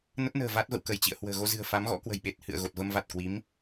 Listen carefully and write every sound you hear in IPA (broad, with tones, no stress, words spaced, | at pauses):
nə˦˥t̚ nə̤ː˨˩va˦˥t̚ və̰˧˨wkə˧˩jt͡ɕḭ˧˨ə̯ hwə̤ː˨˩ɣo˧ zɨ̤˨˩ə̯fa˨˦mɣɔ̰˧˥ kwə̤˨˩jɓe˨˩t̚ hɨ̰˧˨ə̯ɣo˨˩t̚ və˧mva˨˩t̚kwi˨˦m